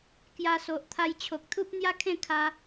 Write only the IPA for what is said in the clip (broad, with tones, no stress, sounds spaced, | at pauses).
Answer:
k j a˧ s o˨ ʔ t̪ʰ a˧ j t͡ɕʰ o˨ k̚ t̪ʰ u˦ p̚ n̪ j a˦ kʰ ẽ˥˧ kʰ a˧